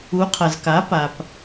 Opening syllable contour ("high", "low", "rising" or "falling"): rising